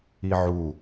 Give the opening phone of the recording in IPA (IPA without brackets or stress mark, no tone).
i